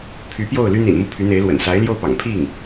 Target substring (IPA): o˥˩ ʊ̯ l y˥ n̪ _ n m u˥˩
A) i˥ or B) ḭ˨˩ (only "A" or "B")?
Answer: B